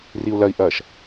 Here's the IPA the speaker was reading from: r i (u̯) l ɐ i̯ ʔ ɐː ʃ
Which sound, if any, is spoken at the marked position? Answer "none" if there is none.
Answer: u̯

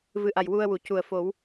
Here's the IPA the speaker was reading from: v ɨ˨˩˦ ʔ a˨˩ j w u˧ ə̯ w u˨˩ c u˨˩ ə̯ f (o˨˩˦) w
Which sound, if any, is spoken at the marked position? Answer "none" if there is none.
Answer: o˨˩˦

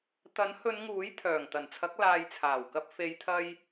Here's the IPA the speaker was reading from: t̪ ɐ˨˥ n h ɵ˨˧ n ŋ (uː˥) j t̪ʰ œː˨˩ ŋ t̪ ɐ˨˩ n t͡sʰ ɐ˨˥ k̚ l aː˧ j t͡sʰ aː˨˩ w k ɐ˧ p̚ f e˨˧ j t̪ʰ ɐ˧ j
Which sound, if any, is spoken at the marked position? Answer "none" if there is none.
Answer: uː˨˥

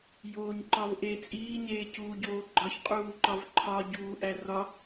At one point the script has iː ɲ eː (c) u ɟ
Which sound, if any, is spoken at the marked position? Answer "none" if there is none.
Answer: c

